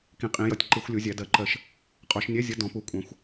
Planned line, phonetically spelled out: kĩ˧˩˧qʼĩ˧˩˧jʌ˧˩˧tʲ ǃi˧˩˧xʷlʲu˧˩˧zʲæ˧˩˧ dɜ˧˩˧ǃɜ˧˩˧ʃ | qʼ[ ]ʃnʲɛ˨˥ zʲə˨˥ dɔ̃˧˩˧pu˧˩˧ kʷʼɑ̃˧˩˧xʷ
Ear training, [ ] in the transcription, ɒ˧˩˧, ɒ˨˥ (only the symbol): ɒ˧˩˧